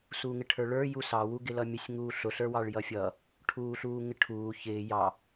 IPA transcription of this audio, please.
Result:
s uː ŋ ɪ ʈʰ ə˞ ɭ ə˞ j u s ɑ w u ɡ ɪ l ʌ mʲ ʊ sʲ ŋ uː ɬ ʊ ɬ ə˞ w ɑ ɭ j ʌ fʲ ʌ | ʈʰ uː ɬ uː ŋ ɪ ʈʰ uː ç ɪː j ɑ

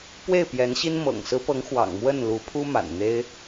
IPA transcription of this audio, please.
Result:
p w e˥˩ ɪ̯ p j ɛ˧˥ n ɕ i˥ n m ɤ̰˨˩ ŋ s ɹ̩˧˥ p ɤ˧˥ ŋ x w ɑ̰˨˩ ŋ m w ə˥˩ n l u˧˥ pʰ u˥ m a̰˨˩ n n̪ e˥ ɪ̯

